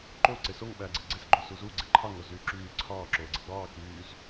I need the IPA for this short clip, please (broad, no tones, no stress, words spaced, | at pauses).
ǃo ǀesoŋ ɓæːɡ͡ǀeɡ͡ǀes ɡ͡ǃosuzu ɡ͡ǀeǃʰɑ ŋozyːǁyː ǀʰɑː ǁoːɡ͡ǀiɡ͡bɑː kyːz